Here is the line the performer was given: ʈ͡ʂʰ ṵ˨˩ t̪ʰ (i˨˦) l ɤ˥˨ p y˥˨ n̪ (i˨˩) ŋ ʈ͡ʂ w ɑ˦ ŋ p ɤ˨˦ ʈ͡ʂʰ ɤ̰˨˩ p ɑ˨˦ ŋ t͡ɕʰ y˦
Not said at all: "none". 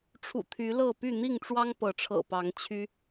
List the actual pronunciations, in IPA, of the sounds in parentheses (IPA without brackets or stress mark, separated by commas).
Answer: y˨˦, i˥˨